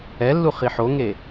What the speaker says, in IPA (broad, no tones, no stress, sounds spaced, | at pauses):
ɛ lː u χ i ħ o ŋ e